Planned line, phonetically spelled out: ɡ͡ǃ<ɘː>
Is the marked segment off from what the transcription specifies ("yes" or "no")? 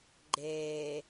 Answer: yes